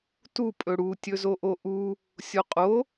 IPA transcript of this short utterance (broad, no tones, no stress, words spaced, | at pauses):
tu pʼɵɽu tʲɵzoʔoʔu | sʲoqʼo